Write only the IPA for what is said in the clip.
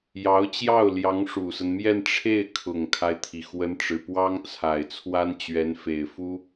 j ɑ˧˥ ʊ̯ t͡ɕ j ɑ˥˩ ʊ̯ l j ɑ˧˥ ŋ ʂ u˨˩ s ə˦ n m j ɛ˥˧ n ʈ͡ʂʰ e˥˩ ɪ̯ kʰ ʊ˨˩ ŋ kʰ a˦ ɪ̯ t̪ʰ i˩ x w ə˧˥ n ʈ͡ʂ ɻ̩˨˩ p w ɑ˥ ŋ t͡sʰ a˨˩ ɪ̯ t͡sʰ w a˥ n t͡ɕ ɥ ɛ˧˥ n f e˨˩ ɪ̯ f u˥

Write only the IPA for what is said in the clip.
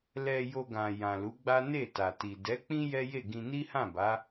l ɛ˧ j o˧ ɡ ã˨ j ã˨ l u˨˦ ɡ͡b a˦ n e˦˨ t a˨ t i˨ d ɛ˨˦ k͡p ĩ˦ j ɛ˦ j e˦˨ ɡ ĩ˧ n i˦ h ã˦˨ b a˨˦

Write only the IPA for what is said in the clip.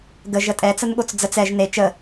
ɡ ə ʒ ə tʼ ɛ t͡s ə n ɠ o t͡s d͡z ə t͡s ɛ ʒ n e t͡ʃ ə

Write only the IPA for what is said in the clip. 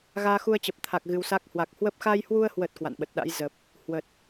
ɣ aː˧ x u˧ ə̯ t͡ɕ ə˨˩ p̚ t̪ʰ a˨˩ k̚ ɣ ɨ˧ w s a˦˥ k̚ h w a˨˩ k̚ h w ə˦˥ p̚ x a˧ j h w u˧ ə̯ h w ə˨˩ t̚ k w a̰˧˨ n ɓ ə˨˩ t̚ ɗ a̰˧˥ j z ə˨˩ p̚ | h w ə˨˩ t̚

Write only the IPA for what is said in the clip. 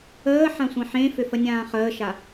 əː ħ ã sʷ ẽ ħ ẽ f ʏ f ə nʲ ãː χ əː ʃ a

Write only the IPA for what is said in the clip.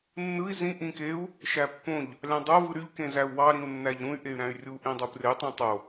nː ɯ i̯ z ĩ ʔ ĩ k e u̯ | ʃ æ pː õ ʎ | lʲ ɑ̃ dˤ o v ɯ ɾ y ʎ k ẽ z æ u̯ w ɑ ɾ ĩ u̯ nː æ ʎ ɾ ũ y̯ ʔ e y̯ ɾ æ̃ y̯ rʲ u ʔ ĩ dˤ u p r e tˤ æ̃ tˤ o

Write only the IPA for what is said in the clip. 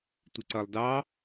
tʷ ɪ ǀ ʌ lˠ d ɑ

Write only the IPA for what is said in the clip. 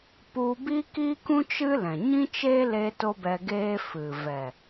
p u˧ b i˦ k i˦ k ũ˦ t͡ʃ ɨ˦ l ɛ̃˨ ɲ ĩ˦ t͡ʃ eː˦ l e˧ t o˦ b ɛ˧ ɡ eː˦ f ɨ˨ v ɛ˨

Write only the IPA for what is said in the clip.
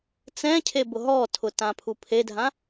t͡s ɛ̃ cʰ e b ʊ ɦ ɔ tʰ ʊ t ã pʰ u pʰ e dʱ ã

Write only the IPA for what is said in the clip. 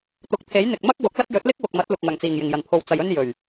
t̪ ʊ˨ k̚ t̪ʰ e˨˥ j n̪ ɪ˨ k̚ m ɐ˥ k̚ w ʊ˨˥ k̚ l ɐ˥ t̚ j ɵ˨˥ t̚ l ɪ˥ k̚ w ʊ˨ k̚ m ɐ˨˥ t̚ l ʊ˨ k̚ ŋ ɐ˨˩ ŋ t͡s iː˨˩ ŋ j ɪ˨˩ ŋ j ɐ˨˩ n pʰ o˨ w t͡s ɐ˨ j ɵ˥ n j ɵ˨˩ ɥ

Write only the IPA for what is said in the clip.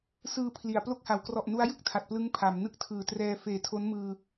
s ɯː˧ pʰ l i˩˦ a̯ p l o˦˥ k̚ h a˩˦ w k r ɔ˨˩ ʔ n u˦˥ a̯ j ɯ˥˩ k̚ tʰ a˨˩ t̚ p l ɯ˦˥ ŋ pʰ a˩˦ m n ɯ˥˩ k̚ tʰ ɯː˨˩ t r ɛː˧ f eː˨˩ tʰ o˦˥ n m ɯː˧

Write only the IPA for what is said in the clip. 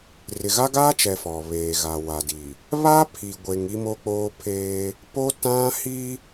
r ɪ˨ ɣ a˦ ɡ aː˦ t͡ʃ ɛ˨ f ɔ˨ β eː˨ ɣ a˨ w a˨ d i˨ | β a˦ pʰ i˨ ɡʷ e˨ ŋ i˦ m o˦ k͡p oː˦ pʰ eː˦ | p o˦ t ã˦ h i˦

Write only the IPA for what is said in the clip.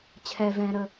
t͡ɕʰ ɛ v ɛ̃ ɾ ə

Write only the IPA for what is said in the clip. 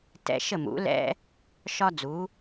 t ɛ̰˧ ʃ ə˧˩ m ṵ˩˧ l ɛ̰˧ | ʃ ɒ˧ d͡z u˩˧

